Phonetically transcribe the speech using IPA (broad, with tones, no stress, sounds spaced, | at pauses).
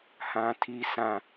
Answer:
h ã˦ tʰ i˦ sʰ ã˦